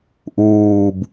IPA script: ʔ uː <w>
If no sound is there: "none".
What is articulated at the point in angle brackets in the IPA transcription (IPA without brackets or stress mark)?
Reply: b